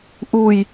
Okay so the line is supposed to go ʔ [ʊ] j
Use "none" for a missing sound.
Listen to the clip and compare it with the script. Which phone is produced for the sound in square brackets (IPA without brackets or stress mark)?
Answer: u